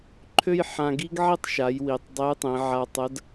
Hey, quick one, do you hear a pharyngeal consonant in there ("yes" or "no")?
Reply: yes